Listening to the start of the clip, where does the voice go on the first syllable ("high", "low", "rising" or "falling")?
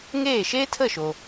falling